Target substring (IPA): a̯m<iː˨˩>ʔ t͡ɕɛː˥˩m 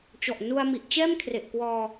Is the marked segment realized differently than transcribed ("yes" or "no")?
yes